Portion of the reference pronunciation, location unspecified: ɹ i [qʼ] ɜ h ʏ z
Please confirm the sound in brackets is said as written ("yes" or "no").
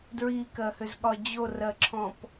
no